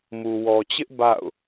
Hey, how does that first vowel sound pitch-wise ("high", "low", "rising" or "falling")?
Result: low